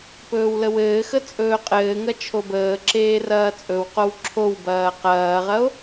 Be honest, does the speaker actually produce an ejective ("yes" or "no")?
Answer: yes